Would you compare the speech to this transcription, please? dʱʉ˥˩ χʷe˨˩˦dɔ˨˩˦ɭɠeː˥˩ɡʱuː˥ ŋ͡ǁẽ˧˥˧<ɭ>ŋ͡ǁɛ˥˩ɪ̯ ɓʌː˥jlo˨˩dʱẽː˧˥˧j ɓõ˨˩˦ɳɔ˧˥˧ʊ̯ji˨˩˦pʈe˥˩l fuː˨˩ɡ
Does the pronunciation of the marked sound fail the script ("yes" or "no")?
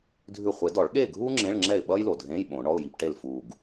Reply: no